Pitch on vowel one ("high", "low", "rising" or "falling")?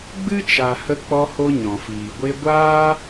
high